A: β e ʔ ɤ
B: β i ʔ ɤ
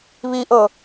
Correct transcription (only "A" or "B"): B